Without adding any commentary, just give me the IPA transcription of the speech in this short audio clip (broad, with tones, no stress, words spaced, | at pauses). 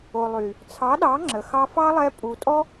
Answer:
o˨lˠy˨ | t͡sʰɑ˨˦ɗɑ˨˦ŋ͡ǁə˨ xɑ˧fɑ˦lˠɛ˧ pʼu˨tʼɔ˦